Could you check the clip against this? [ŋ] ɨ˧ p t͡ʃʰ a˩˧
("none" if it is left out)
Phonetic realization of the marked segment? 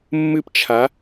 mː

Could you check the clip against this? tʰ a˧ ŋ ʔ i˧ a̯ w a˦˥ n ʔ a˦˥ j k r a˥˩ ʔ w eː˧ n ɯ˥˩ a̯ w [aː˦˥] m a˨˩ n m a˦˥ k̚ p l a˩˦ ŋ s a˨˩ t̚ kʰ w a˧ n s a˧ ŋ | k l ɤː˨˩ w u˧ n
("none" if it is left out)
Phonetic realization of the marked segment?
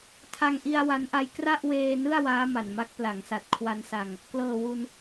aː˦˥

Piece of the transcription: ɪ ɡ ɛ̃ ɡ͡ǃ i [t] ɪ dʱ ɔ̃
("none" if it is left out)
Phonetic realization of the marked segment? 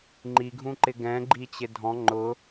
t͡ɕ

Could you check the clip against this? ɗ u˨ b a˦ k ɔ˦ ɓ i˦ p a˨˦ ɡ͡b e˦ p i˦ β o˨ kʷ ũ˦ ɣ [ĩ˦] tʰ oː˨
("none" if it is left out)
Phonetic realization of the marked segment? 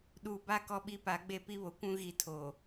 i˦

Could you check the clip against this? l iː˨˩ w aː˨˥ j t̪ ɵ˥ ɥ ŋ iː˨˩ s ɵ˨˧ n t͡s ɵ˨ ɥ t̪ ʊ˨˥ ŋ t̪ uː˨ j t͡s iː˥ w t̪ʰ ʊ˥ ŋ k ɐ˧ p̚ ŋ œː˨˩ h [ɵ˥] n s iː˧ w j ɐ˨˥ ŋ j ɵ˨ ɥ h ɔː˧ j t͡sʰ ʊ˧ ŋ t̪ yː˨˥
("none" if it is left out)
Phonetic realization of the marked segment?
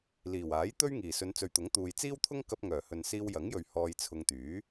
ɵ˨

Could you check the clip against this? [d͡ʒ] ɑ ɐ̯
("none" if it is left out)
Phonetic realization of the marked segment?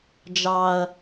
d͡ʒ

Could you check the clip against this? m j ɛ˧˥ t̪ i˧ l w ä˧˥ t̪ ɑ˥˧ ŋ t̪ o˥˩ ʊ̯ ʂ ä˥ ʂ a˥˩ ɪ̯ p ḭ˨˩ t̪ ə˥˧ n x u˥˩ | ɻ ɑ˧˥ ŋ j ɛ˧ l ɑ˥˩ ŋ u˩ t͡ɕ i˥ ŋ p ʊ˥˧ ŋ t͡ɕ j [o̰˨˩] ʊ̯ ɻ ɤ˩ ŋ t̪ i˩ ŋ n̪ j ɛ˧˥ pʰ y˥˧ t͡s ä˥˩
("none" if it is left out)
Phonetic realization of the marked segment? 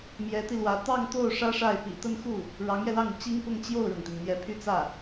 o˥˩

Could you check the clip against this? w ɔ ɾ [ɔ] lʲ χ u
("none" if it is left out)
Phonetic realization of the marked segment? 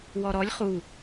ɔ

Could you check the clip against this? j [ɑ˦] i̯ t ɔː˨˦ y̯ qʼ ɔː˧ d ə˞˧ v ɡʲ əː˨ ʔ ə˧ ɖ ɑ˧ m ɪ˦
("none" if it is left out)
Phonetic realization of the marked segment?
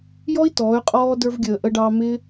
ɔ˦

